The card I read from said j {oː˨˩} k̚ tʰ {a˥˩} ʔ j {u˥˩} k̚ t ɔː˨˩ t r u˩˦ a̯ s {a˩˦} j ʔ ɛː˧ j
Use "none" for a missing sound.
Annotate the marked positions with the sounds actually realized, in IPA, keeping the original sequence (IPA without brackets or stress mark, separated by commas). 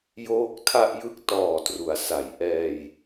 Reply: oː˦˥, a˥˩, ɯ˥˩, a˩˦